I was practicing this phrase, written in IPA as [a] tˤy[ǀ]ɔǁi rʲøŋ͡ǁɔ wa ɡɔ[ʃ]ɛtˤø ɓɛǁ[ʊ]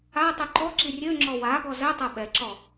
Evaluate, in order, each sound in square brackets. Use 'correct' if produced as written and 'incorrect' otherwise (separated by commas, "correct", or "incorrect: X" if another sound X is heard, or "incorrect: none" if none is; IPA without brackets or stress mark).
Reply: correct, incorrect: ǃ, incorrect: z, incorrect: ɔ